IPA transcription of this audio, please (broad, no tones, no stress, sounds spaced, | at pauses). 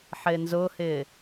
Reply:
ħ ɪː n z ʊː h ɪː